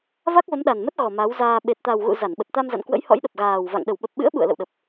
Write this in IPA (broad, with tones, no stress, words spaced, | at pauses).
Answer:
va˦˥k̚və˨˦mɗa˨˩nmə˦˥t̚ ɣɔ˨˩ ma˨˦wzaː˧ ɓe˨˩t̚t̪a˨˩wɣṵ˧˨ za˧˩nɓə˨˩t̚ t̪a˧mza̰˧˨nkwə̰˧˥j hɔ̰˧˥jɗə˨˩p̚ɣaː˨˩wva̰˧˨ŋ ɗə˧˩wɓə˨˩p̚ɓɨ̰˧˥ə̯ ɓṵ˧˨ə̯lə̰˧˨wɗə˨˩p̚